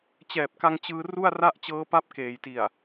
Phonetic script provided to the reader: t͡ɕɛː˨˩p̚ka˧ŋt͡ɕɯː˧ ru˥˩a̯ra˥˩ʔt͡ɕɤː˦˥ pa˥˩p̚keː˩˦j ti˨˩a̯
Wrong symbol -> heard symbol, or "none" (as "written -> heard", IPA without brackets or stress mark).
none